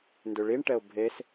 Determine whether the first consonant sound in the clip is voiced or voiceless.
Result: voiced